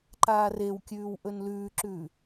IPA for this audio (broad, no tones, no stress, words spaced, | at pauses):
ǃaːrewkʲʉːw ʔɵnlʉːǁʉː